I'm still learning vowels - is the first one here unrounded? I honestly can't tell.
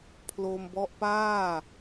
no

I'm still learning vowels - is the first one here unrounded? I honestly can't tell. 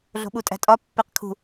no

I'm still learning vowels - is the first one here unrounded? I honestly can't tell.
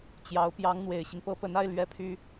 yes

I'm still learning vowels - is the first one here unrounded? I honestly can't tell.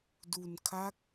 no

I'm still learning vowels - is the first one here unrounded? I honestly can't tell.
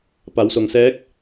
yes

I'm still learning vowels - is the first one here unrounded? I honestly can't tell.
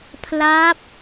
yes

